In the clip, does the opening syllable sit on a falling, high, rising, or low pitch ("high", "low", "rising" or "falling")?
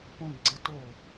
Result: high